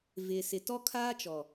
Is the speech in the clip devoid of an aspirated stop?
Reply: no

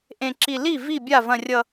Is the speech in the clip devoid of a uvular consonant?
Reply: yes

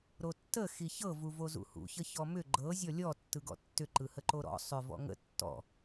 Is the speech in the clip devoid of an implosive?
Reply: yes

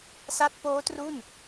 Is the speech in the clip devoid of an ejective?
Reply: yes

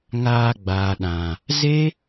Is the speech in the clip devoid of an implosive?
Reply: no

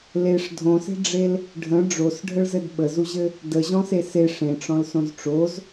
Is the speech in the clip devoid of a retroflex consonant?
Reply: no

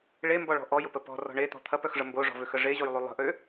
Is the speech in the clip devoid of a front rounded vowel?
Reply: no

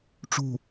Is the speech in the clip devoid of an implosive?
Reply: yes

